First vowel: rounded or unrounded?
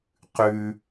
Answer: rounded